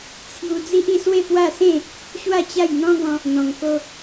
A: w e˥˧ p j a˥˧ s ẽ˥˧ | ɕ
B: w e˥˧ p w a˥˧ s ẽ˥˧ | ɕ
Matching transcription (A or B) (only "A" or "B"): B